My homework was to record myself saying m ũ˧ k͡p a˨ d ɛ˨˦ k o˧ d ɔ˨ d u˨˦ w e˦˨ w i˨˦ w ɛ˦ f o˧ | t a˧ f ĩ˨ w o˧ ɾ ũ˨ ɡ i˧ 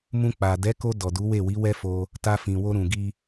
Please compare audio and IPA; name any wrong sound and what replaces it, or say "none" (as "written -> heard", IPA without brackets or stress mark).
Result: none